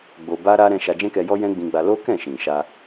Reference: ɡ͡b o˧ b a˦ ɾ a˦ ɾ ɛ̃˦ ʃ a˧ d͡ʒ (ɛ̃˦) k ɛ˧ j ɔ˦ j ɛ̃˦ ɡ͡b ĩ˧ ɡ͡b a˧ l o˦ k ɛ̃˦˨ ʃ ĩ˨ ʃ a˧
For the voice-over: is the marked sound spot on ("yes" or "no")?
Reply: yes